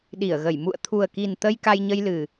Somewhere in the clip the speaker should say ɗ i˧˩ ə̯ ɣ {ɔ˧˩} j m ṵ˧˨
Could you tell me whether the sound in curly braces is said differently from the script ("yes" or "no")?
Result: yes